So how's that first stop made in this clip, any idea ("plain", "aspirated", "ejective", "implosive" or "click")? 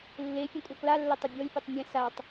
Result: ejective